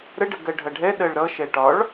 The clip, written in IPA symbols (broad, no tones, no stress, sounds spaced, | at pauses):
ɾ ə ɖ ə ɡ ɜ ɖʱ ʌ ɖʱ ɛ ɗ ɜ ɭ ɾ ʌ ʃ ɛ ʈ ɒ ɭ